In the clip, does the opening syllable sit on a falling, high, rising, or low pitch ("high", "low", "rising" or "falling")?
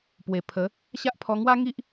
low